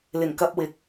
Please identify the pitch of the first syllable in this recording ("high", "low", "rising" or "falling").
low